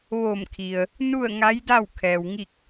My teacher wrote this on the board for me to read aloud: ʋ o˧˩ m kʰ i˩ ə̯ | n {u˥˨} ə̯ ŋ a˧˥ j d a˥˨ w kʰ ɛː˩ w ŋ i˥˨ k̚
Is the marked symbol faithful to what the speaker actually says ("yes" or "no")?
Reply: yes